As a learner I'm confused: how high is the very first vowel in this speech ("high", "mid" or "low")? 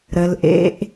mid